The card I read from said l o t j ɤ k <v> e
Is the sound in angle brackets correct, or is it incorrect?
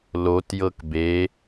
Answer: incorrect